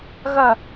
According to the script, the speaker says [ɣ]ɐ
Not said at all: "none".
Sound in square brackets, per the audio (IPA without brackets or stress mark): ɣ